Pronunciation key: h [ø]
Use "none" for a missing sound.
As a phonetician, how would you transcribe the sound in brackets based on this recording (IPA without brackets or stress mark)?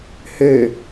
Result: ø